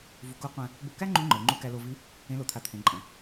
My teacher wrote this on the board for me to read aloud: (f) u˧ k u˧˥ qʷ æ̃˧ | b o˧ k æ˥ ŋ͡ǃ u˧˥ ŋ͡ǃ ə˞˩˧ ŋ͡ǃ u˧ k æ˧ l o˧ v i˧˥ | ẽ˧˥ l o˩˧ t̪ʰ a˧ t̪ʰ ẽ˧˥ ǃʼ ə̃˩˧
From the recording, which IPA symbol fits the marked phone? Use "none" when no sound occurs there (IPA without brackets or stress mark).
v